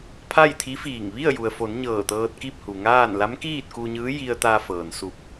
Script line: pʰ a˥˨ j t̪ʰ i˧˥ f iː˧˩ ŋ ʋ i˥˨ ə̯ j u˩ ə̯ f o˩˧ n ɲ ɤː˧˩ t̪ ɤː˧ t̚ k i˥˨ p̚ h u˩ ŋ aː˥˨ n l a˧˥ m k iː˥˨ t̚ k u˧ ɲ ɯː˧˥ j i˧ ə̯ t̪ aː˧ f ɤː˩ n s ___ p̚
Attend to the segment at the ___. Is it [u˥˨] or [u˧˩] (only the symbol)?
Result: u˧˩